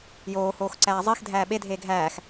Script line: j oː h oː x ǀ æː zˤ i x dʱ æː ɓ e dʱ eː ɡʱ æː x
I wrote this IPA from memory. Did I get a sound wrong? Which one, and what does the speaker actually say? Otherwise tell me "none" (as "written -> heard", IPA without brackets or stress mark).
none